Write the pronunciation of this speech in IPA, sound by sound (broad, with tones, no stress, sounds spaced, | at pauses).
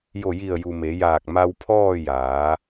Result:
j o˧˩ j i˧˩ ə̯ j u˩ m e˩˧ j aː˧˩ k̚ m a˧ w pʰ ɔː˥˨ j aː˩˧